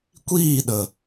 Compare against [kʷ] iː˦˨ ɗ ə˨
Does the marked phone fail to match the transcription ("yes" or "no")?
no